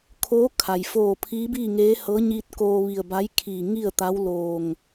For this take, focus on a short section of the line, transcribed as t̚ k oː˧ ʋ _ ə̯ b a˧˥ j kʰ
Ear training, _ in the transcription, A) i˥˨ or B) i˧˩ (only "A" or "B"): B